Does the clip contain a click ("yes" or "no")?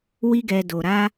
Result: no